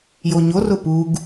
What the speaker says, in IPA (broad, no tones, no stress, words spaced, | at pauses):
joɲorʊ puɡ